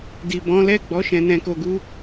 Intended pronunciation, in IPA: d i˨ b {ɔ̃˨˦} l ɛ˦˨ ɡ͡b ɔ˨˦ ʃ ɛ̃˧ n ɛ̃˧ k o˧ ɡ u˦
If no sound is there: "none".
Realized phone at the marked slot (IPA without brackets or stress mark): ɔ̃˨˦